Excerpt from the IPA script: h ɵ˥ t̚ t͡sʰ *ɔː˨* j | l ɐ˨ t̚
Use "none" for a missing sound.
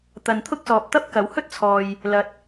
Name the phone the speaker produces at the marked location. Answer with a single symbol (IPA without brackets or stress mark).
ɔː˨